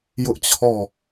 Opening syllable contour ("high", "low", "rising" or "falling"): high